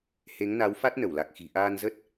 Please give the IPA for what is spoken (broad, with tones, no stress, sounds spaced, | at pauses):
h e˨˦ ŋ n a˨˦ w f a˦˥ t̚ n ə˧˩ w l a˨˩ k̚ x i̤˨˩ ʔ aː˧ n z ə˦˥ t̚